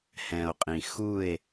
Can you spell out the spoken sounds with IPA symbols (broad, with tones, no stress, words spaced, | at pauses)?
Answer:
hɛ̃˨o̯qʼĩ˨ xu˦˨e̯